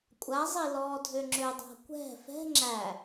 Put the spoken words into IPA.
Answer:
kʷʼazˤi lɔːdʱøŋ͡ǁødˤa̤ kʷɛ̤ fɛ̤ ŋ͡ǁæ

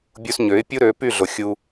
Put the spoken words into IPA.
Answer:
bʲu˧sɲø˩˥ɪ̯ pʲu˥ɾø˩˥py˥˩ɮo˩ xʲu˧

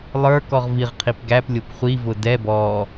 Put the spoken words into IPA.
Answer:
lˠə˞ kɔʁviʁqʰip ɡæplʲʊp χʷivʊ dɛ bɔ

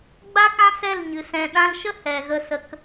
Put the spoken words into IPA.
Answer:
ɡ͡ba˦kã˦sɛ˦˨lɲɨ˨ sɛ̃˨ɗã˧lʃə˦ hɛ˨ɣə˧sə˧k

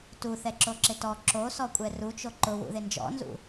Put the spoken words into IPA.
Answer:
tuθɛǁoǁɪ tɔ ǁosɔkʷʼɛ rut͡ʃo ǃʊwṵðɪ nd͡ʒɔ̰nzṵ

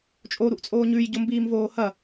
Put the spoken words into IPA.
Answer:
t͡ʃʼoɾuʔt͡sʼoː ɲʉjɟombiːmvoː hɐ

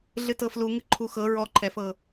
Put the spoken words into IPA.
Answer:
ɮɨtɤfluŋɨ ǃʰuxɤ ɹɔǃʰɛfɤ

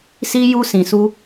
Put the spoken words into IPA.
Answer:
si˦ju˦ sĩ˧su˦

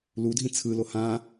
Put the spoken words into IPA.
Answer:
ludʱĩ t͡sʰɯlo hã

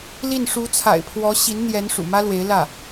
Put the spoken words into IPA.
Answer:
li˥˩n ʂu˧˥t͡sʰa̰˨˩ɪ̯pʰwɔ˧˥ ɕi˧˥nn̪jɛ˧˥n ʂṵ˨˩mä˥lwe˧˥ɪ̯lä˥˩

